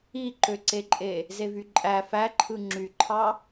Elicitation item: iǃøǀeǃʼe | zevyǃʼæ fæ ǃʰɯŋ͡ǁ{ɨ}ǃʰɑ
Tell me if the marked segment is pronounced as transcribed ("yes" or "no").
no